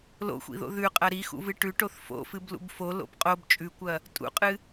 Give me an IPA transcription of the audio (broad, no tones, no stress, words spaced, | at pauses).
lo̰xʷḭðo̰ ðʉqʼɐ ɾixṵvɨ ʈʉʈoθ fo̰fɨblṵb folo̰b qʼob t͡ʃʼʉkʷɐ | tʼṵqʼɨ